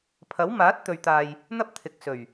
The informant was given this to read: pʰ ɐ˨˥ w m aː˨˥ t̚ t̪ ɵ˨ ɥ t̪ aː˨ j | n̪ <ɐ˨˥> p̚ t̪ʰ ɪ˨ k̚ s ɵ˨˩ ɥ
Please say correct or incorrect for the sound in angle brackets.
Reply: incorrect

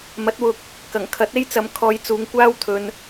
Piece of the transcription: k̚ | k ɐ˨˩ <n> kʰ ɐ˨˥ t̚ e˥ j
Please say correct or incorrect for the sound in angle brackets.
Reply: incorrect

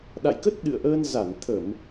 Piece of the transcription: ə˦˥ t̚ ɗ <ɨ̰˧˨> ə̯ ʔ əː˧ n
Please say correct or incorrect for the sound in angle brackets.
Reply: correct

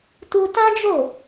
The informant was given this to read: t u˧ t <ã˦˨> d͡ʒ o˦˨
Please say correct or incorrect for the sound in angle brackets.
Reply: incorrect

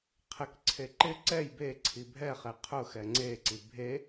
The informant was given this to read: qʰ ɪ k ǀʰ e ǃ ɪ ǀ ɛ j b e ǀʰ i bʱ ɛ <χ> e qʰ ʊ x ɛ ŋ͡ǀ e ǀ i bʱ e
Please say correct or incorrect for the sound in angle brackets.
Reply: correct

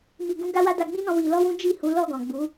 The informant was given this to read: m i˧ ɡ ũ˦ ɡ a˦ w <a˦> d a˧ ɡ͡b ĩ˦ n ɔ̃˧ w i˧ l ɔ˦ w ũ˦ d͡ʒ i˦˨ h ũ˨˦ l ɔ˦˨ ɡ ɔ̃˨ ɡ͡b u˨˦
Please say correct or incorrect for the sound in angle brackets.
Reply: correct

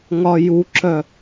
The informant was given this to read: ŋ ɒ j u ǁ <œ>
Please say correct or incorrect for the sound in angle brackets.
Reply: correct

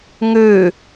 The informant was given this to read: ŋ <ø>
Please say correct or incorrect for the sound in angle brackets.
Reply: correct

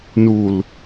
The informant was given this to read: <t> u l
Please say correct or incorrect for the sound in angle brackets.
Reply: incorrect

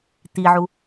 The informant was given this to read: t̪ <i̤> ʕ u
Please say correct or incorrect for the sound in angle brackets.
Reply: incorrect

